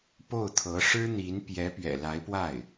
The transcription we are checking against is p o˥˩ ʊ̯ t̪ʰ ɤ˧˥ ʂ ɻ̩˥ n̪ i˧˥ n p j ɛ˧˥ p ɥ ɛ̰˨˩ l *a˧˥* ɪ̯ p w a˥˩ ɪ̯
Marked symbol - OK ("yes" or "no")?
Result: yes